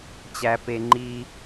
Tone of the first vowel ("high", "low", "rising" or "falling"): high